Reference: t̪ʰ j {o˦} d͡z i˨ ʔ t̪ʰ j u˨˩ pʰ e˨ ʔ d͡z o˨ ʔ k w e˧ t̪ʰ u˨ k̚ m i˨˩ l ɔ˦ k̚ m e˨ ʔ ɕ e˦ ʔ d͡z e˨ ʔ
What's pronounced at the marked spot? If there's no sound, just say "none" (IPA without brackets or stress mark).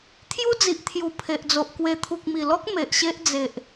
u˦